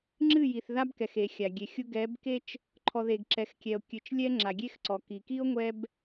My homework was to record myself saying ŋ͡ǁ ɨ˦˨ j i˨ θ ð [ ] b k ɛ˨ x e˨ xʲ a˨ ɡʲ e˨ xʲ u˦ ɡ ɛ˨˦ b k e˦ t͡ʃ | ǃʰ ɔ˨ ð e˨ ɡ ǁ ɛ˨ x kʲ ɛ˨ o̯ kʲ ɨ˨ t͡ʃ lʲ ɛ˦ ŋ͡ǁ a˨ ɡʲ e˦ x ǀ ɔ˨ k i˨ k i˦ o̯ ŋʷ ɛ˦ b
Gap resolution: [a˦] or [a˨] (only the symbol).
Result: a˦